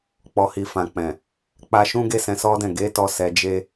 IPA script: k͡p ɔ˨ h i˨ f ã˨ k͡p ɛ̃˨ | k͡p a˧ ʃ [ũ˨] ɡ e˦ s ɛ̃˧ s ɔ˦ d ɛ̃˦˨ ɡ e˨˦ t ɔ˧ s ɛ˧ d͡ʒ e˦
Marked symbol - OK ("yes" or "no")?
no